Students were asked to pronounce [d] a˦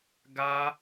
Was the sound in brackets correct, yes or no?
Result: no